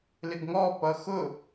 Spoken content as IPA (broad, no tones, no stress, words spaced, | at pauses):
lɪɡŋɔpʌ xʊ